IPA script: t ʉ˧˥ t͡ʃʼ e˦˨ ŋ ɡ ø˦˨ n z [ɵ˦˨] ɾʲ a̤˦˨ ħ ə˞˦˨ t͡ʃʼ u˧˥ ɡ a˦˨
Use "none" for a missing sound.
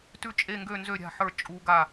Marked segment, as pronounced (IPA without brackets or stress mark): ø˦˨